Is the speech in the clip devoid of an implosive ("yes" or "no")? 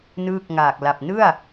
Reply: yes